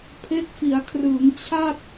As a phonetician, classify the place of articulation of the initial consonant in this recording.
labial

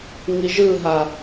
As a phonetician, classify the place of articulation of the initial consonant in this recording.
velar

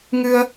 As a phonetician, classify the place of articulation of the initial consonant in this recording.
velar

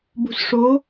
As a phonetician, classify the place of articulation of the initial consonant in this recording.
labial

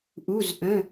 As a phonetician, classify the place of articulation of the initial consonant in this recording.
glottal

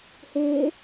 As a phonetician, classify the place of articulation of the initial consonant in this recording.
glottal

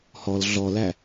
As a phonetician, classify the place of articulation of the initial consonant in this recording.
glottal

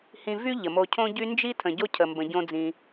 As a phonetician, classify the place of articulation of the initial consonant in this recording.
glottal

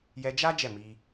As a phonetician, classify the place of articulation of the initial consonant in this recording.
palatal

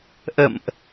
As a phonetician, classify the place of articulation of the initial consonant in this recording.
glottal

